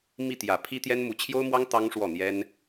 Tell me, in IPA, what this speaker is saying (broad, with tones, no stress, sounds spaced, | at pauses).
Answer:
m i˥˩ t̪ j ä˨˩ pʰ i˥ t̪ j ɛ˥ n m u˧˥ t͡ɕʰ j o˥ ʊ̯ m w ɑ˥ ŋ t̪ ɑ˥ ŋ ʂ w ɔ˥˩ n̪ j ɛ˥ n